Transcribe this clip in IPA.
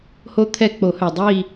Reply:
ho˦t̪ʰɛ˦˨k͡po˨˩˦hœ˩ dˤi˦˨

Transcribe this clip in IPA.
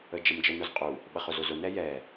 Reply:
əd͡ʒɐmd͡ʒə nʊzqʼu | ɓɐχʊzʊzʊ nɛjɛ

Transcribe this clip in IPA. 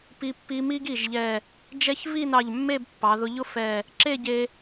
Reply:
pi˧ pːi˧ mi˥ɡi˧˩ʒ ʎɛ˧˩ | d͡ʒɛ˥ç vi˥˧nɑ˧˩ʎ mːe˥˧bpːɑ˩˧ðʊ˧ʎʊ˥ fɛ˧˩ | ǁe˥˧ɟe˧

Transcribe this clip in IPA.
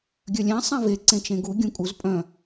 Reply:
ɡʲœlʲɛ̃ sˤẽve ǀẽt͡ʃẽɡu ɡʲũkʼuz pʼœ̃

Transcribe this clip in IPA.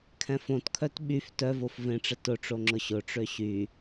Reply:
kʰɛ̃fõtkʰœt ɓyf tœvof vẽʈ͡ʂə tʊʈ͡ʂo ŋ͡ǁʊɕʊʈ͡ʂø ɕy

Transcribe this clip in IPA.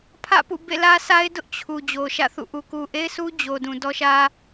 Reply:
pʰä̰˦˨pṵ˦˨ bḛ˦˨lä˦sa˦ɪ̯dʊ˦ʔ t͡ɕʰu˨ d͡ʑo˨ʃä̰˦˨θṵ˦˨ʔu˨ ku˨ʔe˦ɪ̯sʰu˦ d͡ʑo˨dũ˨ dɔ˦ʃä˦

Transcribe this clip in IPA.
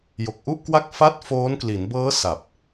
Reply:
jo˨˩k̚ʔu˥˩ʔkwa˥˩k̚fa˥˩t̚ foː˦˥nkli˩˦n bɤː˦˥ sa˨˩p̚

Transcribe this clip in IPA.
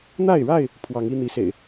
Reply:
n̪a˥˨ɪ̯ɻa˥˨ɪ̯ | pʰwɑ˨˦ŋi˦n̪i˨˦ sḛ˨˩ɪ̯

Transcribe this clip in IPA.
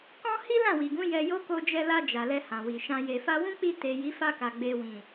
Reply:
kɔ̃˦ hi˦lã˦˨wi˨ɡũ˨˦ jɛ˧jo˦ ko˧d͡ʒɛ˧la˧ d͡ʒa˨lɛ˧ hã˨wi˨ʃã˧ je˨fa˧wũ˦k͡pi˧ te˨ ji˨˦fa˧ka˨ ɡ͡be˨wĩ˨

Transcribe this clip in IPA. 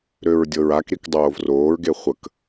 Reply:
ɾøɹdʲɤɹakɾik dˤoːvroːɹɡe χʷək

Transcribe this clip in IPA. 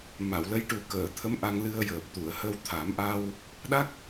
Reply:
ma˨˩˨wlə˧˥j ʈu˨˩kəː˨˩˨ t̪ʰə˧˥m ʔa˧ŋlɨ˧ə̯jəː˨˩p̚ t̪u˨˩˨ə̯hə˧wt̪ʰa˨˩˦mʔa˧w | ɗa˦˥k̚

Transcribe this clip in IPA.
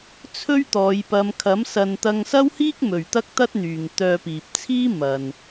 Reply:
t͡sʰɵ˥ɥt̪ɔː˨˧j pɐ˨˧mkʰɐ˨˥m sɐ˧n t̪ɐ˧ŋsɐ˥whiː˥k̚ mɵ˨ɥt̪ɐ˥k̚t̪ɐ˥t̚n̪yː˨ŋ t̪œː˧piː˨p̚t͡sʰiː˥ mɐ˨n

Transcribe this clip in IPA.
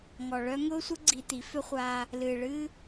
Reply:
ŋɔ˨ɭœ˦ ŋʊː˦sʷə˦ ɡ͡ǀi˧t̪i˨˦ fʏ˦χʷaː˧ | lɨː˨ɭɨː˦

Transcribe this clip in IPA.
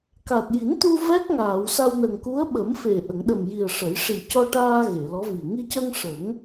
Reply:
ka˨˩t̚ji˨˩˦nt̪u˧ vɛ˦˥k̚ŋaː˨˩˨wsa˧wnə˨˩ŋ ku˧˥ə̯ɓə˨˩˦mfe˨˩ ʔə˨˩˨ŋɗə˨˩mji˨˩ə̯ ʂə˨˩˦j ʂi˨˩cɔ˧ʈaː˧ ɣe˨˩˨lɔ˧˥vi˨˩ ŋi˧cə˧ŋ ʂə˨˩˦ŋ

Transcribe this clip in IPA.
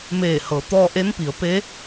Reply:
meː˧˩hɤː˩˧t̪ɔː˧ʔe˧˥n pi˩˧ə̯pe˧˥

